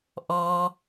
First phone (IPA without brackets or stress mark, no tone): ʔ